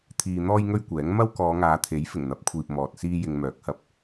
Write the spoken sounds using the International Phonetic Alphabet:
t̪ʰiː˨ n̪ɔː˥jŋɵ˥ɥkʷɛː˨˥ŋ mɐ˥wkɔː˨˧ŋaː˨˧t̪ʰe˨˥j fɪ˨˩ŋn̪ɐ˨˥p̚kʷʰiː˨p̚ mɔː˨t̚siː˥ jɪ˧ŋmœː˨˥k̚hɐ˧p̚

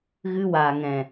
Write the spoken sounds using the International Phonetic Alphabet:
ɣɨ˧wa˨ŋɛ̃˨

